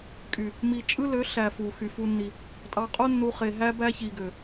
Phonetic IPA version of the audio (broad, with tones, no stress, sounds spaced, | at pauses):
kʼ y˨ | m i˨ t͡ʃʼ ɯ˦ l ø˨˦ ɬ æ˨ f u˨ x y˨ f u˦ nː i˦ | tʼ ɑ˨ qʼ o˦ nː u˨ χ e˨ ɦ æ˦ b æ˦ ç i˨ ɡ ø˨